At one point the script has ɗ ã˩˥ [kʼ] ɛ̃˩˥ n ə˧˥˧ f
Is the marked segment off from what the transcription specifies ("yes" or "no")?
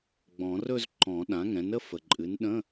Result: yes